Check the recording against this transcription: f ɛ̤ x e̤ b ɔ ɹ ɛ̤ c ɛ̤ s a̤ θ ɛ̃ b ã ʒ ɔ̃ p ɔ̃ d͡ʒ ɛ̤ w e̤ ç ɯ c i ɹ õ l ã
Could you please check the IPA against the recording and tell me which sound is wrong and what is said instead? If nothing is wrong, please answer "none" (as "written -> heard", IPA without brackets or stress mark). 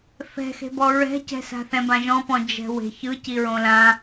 none